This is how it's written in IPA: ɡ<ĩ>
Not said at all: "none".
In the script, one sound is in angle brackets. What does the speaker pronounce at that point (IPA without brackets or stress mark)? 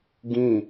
ĩ